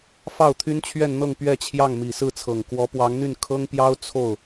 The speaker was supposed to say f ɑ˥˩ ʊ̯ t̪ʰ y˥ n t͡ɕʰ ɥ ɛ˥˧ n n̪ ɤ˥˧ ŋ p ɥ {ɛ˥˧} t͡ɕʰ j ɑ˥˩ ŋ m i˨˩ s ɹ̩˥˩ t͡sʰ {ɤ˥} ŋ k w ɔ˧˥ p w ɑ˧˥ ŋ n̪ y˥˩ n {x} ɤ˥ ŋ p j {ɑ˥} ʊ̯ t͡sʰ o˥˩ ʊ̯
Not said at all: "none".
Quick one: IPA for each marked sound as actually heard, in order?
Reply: ɛ˥˧, ɤ˨˩, kʰ, ɑ˥

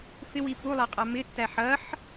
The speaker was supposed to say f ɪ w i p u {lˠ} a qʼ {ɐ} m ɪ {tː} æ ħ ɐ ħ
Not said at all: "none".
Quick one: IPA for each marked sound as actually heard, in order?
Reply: lˠ, a, tː

